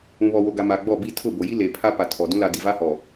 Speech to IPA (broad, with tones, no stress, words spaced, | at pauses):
ũ˨ βɔ˨wo˨ɡa˨ ma˨ɡ͡bɔ˦˨ bi˦˨tʰʊ˦˨bo˨ji˦ le˨pʰa˦ pa˨ tʰɔ˨dũ˦ la˨ di˨va˦hɔ˨